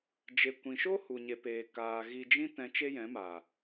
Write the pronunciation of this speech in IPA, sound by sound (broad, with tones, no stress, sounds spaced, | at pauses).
d͡ʒ e˨ kʷ ĩ˨ ʃ o˦ h u˨ ɲ e˨ p eː˨ k aː˨ ɣ i˨ d͡ʒ ĩ˧ t ɛ̃˧ t͡ʃ e˦ j ɛ̃˨˦ m a˨